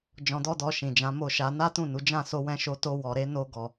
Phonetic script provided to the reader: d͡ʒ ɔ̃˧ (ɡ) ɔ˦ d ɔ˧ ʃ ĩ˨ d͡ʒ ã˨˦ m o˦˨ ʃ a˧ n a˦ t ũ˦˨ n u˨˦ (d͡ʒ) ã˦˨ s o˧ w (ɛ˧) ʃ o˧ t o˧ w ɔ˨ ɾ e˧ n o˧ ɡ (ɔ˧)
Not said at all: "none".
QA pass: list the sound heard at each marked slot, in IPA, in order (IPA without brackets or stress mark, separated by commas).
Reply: d, d͡ʒ, ɛ̃˧, ɔ˨